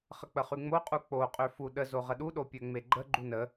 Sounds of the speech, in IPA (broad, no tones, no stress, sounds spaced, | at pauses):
χ ə k͡p ə χ y ŋ͡m o qʼ u k͡p o qʼ ø f u ɗ ə z o ʁ ə ɗ u ɗ o pʲ ø ŋ͡m e ɡ͡ǃ ə ɡ͡ǃ u n ə